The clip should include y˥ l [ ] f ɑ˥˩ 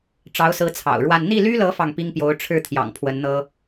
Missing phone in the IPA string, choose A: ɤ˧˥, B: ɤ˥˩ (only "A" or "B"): A